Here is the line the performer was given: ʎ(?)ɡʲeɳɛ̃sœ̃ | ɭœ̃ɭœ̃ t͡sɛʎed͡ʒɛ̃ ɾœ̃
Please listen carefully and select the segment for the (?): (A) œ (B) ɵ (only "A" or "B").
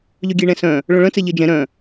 A